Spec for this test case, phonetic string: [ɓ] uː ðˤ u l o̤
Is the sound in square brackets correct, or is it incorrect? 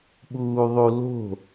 correct